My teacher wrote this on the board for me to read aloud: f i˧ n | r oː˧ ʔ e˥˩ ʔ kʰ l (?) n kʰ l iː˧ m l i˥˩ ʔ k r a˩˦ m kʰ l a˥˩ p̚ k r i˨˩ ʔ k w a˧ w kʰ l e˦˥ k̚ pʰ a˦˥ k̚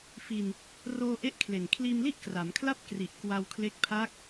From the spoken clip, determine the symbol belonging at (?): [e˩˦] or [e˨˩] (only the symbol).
e˨˩